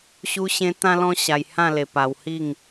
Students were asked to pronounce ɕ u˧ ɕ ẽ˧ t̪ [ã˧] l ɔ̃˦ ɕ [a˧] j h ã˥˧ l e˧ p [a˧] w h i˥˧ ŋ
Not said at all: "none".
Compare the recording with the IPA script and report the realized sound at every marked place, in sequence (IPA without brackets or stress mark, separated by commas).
ã˦, a˧, a˧